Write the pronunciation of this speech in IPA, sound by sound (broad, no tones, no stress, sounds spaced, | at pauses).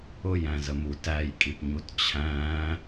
ʊ j æ̃ z ə m u t æ j kʼ i p ɲ u t t͡ɕʰ æ̃ː